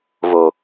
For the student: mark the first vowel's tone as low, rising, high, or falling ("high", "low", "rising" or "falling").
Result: low